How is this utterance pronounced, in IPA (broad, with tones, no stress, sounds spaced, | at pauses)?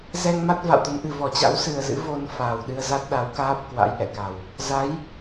z ɛ˧ ŋ m a˦˥ t̚ v a̰˧˨ w t̪ ə˨˦ n ʔ ɨ˨˩ v ɔ˧˩ t͡ɕ a̰˧˥ w s ɨ˨˩ ə̯ z ɨ̰˧˥ v o˧ n f aː˨˩ w ɗ ɨ˧ ə̯ z a˦˥ t̚ ɗ a˨˦ w k aː˦˥ p̚ k w a̰˧˥ j ʔ ɛ̰˧˨ k a˨˩ w | z a˨˦ j